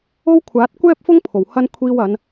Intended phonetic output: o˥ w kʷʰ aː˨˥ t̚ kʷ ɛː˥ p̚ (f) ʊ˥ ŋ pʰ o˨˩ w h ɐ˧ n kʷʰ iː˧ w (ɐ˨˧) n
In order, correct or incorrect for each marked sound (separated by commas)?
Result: correct, correct